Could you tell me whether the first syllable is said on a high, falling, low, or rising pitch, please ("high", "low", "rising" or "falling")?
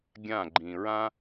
falling